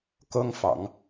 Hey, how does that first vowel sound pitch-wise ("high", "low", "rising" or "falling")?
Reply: high